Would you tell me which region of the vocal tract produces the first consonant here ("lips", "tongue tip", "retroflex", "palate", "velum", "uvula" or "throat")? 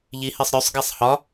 palate